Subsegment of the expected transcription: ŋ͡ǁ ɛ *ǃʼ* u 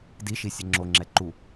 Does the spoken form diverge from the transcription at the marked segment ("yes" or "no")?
yes